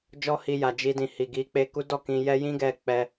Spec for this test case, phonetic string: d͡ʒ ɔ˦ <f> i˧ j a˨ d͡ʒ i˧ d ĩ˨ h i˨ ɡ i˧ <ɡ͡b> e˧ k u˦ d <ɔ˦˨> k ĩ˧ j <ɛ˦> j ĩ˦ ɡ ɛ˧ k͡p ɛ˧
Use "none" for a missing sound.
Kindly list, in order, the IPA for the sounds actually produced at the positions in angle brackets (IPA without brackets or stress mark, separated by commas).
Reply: h, k͡p, ɔ˦˨, ɛ˦